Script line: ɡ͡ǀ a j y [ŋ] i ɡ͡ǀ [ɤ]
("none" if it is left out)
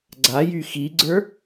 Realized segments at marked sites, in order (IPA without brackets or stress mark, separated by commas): x, ə˞